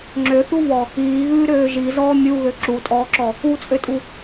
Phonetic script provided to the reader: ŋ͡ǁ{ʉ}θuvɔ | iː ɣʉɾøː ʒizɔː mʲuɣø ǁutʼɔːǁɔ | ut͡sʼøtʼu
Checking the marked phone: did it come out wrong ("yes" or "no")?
yes